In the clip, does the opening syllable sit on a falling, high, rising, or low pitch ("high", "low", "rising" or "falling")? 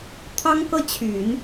high